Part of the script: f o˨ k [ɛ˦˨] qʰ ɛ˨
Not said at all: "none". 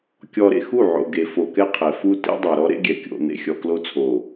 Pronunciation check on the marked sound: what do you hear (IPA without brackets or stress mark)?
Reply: ɛ˦